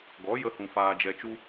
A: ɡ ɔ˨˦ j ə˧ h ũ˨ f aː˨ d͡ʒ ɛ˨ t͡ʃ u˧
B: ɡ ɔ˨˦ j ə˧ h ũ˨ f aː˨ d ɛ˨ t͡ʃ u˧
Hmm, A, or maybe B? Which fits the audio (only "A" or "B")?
A